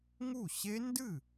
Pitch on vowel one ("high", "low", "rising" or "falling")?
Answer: falling